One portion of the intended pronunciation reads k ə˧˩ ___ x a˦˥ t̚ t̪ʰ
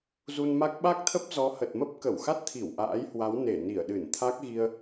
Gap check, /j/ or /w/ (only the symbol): w